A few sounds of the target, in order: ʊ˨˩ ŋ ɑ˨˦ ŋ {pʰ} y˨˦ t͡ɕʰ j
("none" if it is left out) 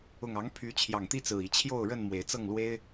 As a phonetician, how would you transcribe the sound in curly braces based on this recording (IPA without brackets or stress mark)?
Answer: pʰ